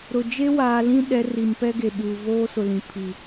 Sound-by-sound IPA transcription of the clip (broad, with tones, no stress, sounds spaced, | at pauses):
ɾ ʊ˨ d͡ʒ e˦ w aː˨ l ĩ˦ ɗ ɛ˨˦ r i˨ m p ɛ˦ ɡ e˨ ɓ uː˨ v oː˦ s ʊ˨ l ĩ˨ pʰ i˨